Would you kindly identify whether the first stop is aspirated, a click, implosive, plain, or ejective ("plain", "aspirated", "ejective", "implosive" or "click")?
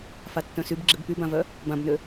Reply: plain